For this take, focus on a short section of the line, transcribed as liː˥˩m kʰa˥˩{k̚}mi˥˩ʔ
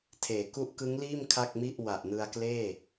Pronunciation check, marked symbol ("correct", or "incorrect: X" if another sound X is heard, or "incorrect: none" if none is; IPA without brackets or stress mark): correct